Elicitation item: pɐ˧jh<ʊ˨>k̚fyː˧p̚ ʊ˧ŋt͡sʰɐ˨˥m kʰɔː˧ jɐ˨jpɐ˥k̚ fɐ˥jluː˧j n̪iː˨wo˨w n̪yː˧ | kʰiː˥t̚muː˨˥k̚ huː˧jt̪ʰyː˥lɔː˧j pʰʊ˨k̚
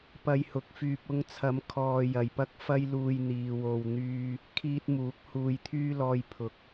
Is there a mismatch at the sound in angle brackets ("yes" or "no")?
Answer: yes